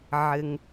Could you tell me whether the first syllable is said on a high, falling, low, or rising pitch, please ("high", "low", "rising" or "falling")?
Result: high